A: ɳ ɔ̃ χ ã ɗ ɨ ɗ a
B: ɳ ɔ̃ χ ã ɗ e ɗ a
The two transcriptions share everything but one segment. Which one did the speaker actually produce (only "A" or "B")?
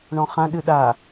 A